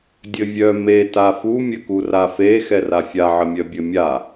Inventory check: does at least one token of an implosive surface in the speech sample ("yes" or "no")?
no